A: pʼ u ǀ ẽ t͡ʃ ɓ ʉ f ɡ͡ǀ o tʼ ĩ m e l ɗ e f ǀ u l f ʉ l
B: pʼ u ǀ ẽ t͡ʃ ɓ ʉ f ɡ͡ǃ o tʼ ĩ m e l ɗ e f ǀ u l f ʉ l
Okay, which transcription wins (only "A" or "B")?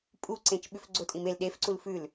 A